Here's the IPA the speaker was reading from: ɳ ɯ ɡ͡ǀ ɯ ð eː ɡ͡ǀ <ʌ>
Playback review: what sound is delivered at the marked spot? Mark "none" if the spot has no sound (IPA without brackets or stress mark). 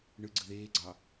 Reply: ɑ